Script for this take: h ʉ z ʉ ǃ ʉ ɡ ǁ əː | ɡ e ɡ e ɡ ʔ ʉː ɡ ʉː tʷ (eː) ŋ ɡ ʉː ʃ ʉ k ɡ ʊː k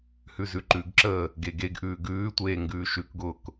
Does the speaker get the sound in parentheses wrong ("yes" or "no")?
no